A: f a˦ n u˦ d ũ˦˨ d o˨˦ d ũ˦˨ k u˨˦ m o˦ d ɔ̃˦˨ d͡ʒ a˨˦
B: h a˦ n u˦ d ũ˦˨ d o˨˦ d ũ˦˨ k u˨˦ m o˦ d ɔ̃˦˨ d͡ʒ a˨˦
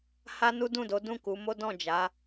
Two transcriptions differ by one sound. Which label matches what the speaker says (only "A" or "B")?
B